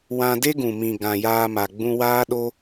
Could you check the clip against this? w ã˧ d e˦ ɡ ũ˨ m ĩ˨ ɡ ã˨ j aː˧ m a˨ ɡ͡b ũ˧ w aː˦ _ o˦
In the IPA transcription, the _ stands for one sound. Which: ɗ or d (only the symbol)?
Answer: ɗ